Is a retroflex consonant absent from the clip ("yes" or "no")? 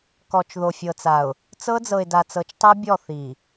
yes